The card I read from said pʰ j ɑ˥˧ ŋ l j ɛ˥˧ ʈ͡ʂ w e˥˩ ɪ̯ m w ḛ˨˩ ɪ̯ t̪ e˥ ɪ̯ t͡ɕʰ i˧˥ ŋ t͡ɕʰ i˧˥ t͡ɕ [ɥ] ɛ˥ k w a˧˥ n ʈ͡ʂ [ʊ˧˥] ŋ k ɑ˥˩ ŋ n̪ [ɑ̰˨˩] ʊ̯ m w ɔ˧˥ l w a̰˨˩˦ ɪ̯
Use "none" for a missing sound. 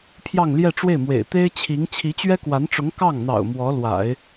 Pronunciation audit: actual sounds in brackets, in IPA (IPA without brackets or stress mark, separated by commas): ɥ, ʊ˧˥, ɑ̰˨˩